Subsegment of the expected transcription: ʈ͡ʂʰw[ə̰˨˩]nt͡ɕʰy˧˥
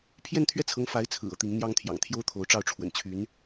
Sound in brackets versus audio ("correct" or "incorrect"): correct